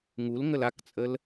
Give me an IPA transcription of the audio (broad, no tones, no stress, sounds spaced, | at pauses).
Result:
ŋ u l ŋ ə l a k t͡sʼ ə l